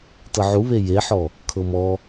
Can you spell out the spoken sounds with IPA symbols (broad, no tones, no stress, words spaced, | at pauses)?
tɤʕuβe jeħɔ | kʰɤmɔ